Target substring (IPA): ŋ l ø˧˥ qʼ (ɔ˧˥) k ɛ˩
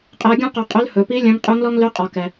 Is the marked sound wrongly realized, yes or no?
yes